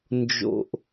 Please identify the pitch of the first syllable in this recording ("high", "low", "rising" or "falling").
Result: low